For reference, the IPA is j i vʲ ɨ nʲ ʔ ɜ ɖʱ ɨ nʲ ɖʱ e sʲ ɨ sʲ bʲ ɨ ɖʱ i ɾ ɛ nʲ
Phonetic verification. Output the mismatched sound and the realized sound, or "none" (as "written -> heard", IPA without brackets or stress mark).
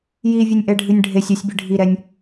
ɜ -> ɛ